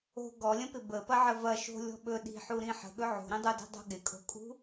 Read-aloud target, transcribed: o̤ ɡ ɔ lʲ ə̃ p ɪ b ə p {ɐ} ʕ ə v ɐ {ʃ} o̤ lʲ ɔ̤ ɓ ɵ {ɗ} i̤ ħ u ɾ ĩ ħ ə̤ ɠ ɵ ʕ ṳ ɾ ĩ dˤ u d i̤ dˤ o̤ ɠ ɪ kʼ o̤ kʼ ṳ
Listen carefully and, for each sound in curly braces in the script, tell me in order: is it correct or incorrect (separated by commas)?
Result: correct, correct, correct